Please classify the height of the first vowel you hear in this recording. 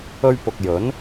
mid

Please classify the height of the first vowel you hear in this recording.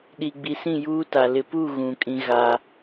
high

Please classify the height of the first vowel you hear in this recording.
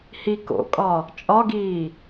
high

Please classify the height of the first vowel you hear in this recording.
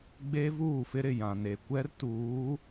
mid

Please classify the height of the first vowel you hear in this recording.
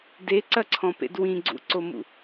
mid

